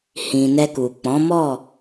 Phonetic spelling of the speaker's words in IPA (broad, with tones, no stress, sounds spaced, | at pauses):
h ĩ˨ n ɛ˧ k u˨ k͡p ɔ̃˨˦ m ɔ˦˨